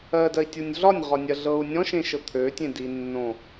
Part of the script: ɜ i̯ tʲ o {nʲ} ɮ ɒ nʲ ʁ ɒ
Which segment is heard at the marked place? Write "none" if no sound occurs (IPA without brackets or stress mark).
nʲ